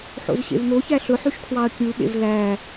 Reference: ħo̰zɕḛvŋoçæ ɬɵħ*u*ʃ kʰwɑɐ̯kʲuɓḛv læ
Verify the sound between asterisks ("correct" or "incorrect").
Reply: incorrect